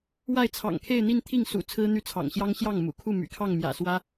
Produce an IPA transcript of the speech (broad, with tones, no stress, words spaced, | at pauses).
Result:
wa˥˩ɪ̯t͡sʰɑ̰˨˩ŋkʰe˥˧ɪ̯n̪i˥˧n t̪ʰi˥˩ŋsṵ˨˩ t͡sʰɹ̩˥n̪y˥˩t͡sʰɑ̰˨˩ŋɕjɑ˥ŋ ɕjɑ˥˩ŋmṵ˨˩kʰu˥˩ my̰˨˩kʰɑ˥˩ŋ mjä̰˨˩swä˥